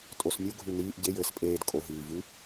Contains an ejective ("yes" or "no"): yes